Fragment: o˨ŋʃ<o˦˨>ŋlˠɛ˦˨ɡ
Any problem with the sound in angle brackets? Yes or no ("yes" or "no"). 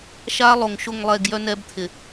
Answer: no